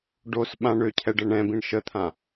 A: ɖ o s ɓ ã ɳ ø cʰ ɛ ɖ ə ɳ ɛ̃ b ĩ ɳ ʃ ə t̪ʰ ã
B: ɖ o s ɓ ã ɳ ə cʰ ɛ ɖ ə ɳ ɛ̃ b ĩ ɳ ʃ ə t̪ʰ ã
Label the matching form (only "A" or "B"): A